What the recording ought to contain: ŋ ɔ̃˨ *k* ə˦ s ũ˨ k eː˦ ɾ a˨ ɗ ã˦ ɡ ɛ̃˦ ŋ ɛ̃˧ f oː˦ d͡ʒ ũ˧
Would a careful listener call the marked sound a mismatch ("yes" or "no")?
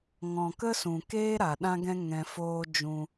no